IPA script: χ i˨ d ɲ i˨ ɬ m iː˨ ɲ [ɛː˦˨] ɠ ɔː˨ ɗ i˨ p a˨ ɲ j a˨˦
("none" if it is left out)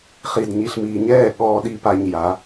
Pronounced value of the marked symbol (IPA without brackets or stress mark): ɛː˦˨